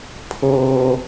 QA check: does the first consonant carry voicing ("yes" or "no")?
no